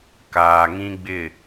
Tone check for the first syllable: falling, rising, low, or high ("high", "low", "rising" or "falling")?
low